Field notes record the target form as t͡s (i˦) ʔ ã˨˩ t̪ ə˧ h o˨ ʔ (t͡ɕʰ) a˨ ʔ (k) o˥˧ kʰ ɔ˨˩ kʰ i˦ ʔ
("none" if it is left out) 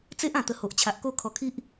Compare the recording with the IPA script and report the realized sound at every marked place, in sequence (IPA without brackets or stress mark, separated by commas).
e˦, t͡ɕʰ, k